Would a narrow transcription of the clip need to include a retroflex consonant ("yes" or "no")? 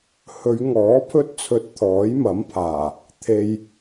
no